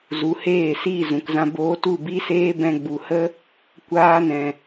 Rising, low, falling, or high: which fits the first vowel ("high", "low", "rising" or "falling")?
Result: rising